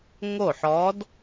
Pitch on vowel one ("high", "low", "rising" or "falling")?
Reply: falling